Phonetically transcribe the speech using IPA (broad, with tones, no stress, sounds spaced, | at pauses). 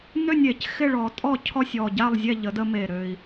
n ø˥˨ nʲ e˨˩˦ c x ɪ˥˨ ɭ ɔ˨˩˦ tʼ ɔ˥˨ cʰ ɔ˥˨ sʲ ɔ˨˩ ɟ a˥˨ lˠ zʲ ɛ˥˨ ʎ ə˨˦ d ə˦ m e˨˩ ɾ ø˨˩ i̯